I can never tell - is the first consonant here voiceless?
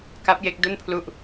yes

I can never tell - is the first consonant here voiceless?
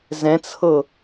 no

